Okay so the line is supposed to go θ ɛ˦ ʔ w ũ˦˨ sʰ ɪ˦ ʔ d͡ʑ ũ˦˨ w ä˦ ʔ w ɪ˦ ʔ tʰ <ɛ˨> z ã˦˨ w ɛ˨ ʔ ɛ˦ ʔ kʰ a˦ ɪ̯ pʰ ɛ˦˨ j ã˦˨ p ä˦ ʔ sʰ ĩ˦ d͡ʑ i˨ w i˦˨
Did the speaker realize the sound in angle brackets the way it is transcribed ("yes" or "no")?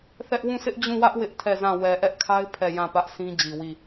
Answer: no